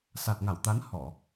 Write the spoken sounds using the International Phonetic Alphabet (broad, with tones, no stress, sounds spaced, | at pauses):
s a˨˩ t̚ ŋ a˧˩ w t̪ a˨˦ n h ɔ˧˩˨